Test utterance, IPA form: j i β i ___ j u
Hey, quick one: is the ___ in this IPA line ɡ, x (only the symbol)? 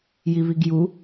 ɡ